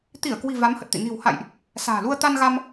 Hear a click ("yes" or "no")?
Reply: no